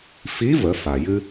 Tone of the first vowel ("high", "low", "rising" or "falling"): rising